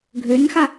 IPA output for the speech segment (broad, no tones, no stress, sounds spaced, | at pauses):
ɡʱ ø n x a